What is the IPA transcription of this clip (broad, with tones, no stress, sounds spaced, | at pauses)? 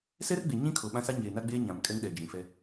s ɛ˦ r ɡ͡b e˨ ɲ ĩ˦ kʰ o˨ ɓ ã˦ s a˦ ɲ eː˨ n a˦ ɡ͡b eː˦ ɲ ã˨ m kʼ ɛ˦ ŋ ɗ ɛ˨ d͡ʒ ĩ˨ f ɛ˦